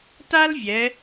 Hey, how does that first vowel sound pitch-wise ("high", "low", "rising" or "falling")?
high